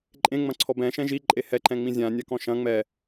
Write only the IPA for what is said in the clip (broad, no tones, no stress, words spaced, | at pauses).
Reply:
ǃʼẽŋ͡mɐ̃ǀʰɔ bɛ̃ʃɛ̃ ʒiǃʼe hɛǃɛ̃ŋ͡mĩ zʲãnʲakɔ̃ ʃɐ̃ ŋ͡mɛ